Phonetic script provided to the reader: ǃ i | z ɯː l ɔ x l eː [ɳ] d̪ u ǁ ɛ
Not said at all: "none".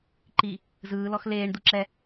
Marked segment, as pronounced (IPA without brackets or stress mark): ɳ